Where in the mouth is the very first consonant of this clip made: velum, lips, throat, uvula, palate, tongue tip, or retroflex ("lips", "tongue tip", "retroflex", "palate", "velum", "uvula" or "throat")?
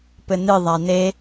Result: lips